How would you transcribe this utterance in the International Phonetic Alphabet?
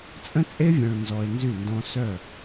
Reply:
t͡sʼ ə̃˦ t͡sʼ e˦ vʲ œ̃˨ ɭ n z ɔ˨ e̯ n z y˦˨ n d ɔ̃˦ s œ˦˨

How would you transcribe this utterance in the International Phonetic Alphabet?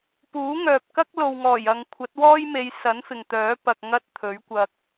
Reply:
p uː˨˥ ŋ œː˨ p̚ k ɐ˥ k̚ l o˨ w ŋ ɔː˨˩ j ɐ˨ ŋ kʷʰ ɐ˨˥ t̚ w ɔː˥ j m e˨˧ j s ɐ˨˥ n f ɪ˨ ŋ t̪ œː˨˥ p ɐ˧ k̚ ŋ ɐ˥ t̚ t̪ʰ ɵ˨˥ ɥ kʷ ɐ˧ k̚

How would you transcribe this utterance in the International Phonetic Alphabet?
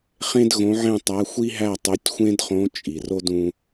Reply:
χ ẽ˥ d ɣ õ˧˥ ʕ ẽ˥˨ tˤ æ˧˥ xʷ i˥ ɦ æ˥˨ tˤ o˧˥ tʲ xʷ ẽ˥ d χ õ˧˥ t͡ʃʼ i˩ r o˥ d ũ˥

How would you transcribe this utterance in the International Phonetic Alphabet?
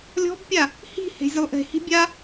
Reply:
lʲ ɔ̤ b pʲ a | h i̤ h e̤ zʲ ɘ lˠ ʔ e̤ h i̤ bʲ a

